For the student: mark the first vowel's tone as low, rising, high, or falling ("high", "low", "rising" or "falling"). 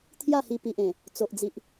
falling